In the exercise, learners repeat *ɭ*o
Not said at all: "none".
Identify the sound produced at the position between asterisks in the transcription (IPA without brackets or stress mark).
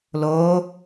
l